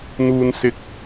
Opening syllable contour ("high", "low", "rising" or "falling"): low